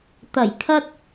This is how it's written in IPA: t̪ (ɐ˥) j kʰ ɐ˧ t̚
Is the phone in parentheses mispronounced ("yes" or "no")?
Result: yes